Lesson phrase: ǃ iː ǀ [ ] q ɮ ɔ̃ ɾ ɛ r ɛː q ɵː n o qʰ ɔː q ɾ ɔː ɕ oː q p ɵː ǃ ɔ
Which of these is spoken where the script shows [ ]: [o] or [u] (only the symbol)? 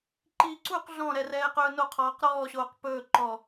u